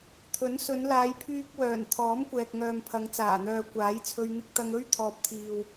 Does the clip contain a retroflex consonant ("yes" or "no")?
no